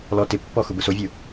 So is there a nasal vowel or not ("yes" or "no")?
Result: no